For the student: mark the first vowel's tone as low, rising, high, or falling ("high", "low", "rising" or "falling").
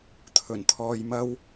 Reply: low